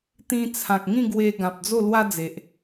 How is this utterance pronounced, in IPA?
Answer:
t̪ ĩ˧ t͡sʰ ã˨ k̚ ŋ ĩ˥˧ ɡ w e˧ ɡ ã˨ p̚ d͡z o˥˧ l w a˦ d͡z e˨ ʔ

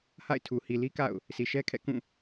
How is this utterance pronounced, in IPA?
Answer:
h a̰˦˨ ɪ̯ tʰ u˨ h i˨ l i˦ k a̰˦˨ ʊ̯ | s i˨ ʃ ɛ˦ kʰ ɛ̰˦˨ k ũ˦˨

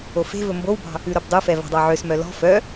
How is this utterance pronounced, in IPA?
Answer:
o f e̤ v ɵ m b o w b ɑ̤ | ʉ ɾ o b dˤ u f ɛ v ɑ̤ dˤ ɑ ʕ ø s m œ l ɔ̤ f œ

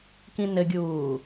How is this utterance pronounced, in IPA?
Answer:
k ĩ n ɘ ɡʲ uː

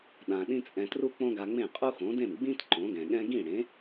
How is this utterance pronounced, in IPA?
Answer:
ɗ ã˧ ɗ ĩ˥ t͡sʼ ɛ̃˧ t r u˥ k͡p õ˥ ɡ a˧ ŋ͡m ẽ˥˩ qʼ u˥ x õ˩˥ d ẽ˥˩ m ɡ͡b ĩ˥ t ǃ õ˩˥ ɡ ɛ̃˩ ɠ ɛ̃˥ ɡ ĩ˥˩ ɽ ẽ˩˥

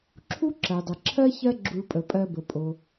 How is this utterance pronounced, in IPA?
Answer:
ǁʰ u˥ ǁ ɜ˩ dˤ ə˩ ǁʰ ɜ˥ ç ɜ˥ ɡ͡ǁ u˧ ɭ pʼ ə˩ pʼ ɜ˧ b ə˩ pʼ o˩

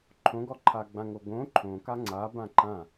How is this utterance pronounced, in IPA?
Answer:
ǃʰ õ ɡ ɔ ǃʰ a ɡ͡b ã ŋ o ɡ õ ǃʰ õ k a ŋ͡ǀ a b ã ǃ ã

